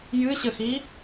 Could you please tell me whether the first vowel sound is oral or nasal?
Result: oral